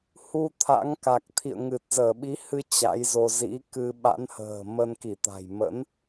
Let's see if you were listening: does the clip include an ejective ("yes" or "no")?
no